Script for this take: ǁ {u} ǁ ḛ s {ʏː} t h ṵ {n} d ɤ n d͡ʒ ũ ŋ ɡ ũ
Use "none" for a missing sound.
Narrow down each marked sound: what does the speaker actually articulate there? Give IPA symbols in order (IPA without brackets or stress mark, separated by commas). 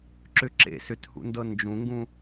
ʏ, ʏ, n